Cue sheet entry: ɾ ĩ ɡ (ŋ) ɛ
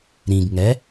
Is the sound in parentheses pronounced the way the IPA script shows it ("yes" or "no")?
yes